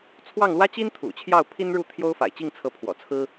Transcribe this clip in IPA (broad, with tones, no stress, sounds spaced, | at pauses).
t͡sʰ w ɑ˥˩ ŋ l w ä˥ t͡ɕ i˥ n t̪ʰ ṵ˨˩ t͡ɕʰ j ɑ˥˩ ʊ̯ pʰ i˥ n ɻ u˥˩ t̪ʰ j o˥ ʊ̯ f a̰˨˩ ɪ̯ t͡ɕ i˥˩ ŋ t͡sʰ ɤ˧˥ pʰ w ɔ̰˨˩ t͡sʰ ɹ̩˥